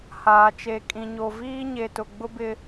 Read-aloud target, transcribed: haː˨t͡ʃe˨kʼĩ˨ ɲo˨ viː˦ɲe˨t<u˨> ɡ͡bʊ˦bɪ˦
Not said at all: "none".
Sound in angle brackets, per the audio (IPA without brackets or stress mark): ʊ˨